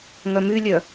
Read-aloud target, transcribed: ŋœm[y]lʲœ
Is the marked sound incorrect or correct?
correct